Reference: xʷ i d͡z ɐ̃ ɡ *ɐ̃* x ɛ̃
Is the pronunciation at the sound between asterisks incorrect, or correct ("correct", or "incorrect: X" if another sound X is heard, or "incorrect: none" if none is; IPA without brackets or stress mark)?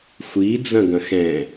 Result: correct